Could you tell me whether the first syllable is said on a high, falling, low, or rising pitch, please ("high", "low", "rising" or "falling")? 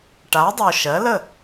rising